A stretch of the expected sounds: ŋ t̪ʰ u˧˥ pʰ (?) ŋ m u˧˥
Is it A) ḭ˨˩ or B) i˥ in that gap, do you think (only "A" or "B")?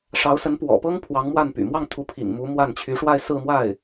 A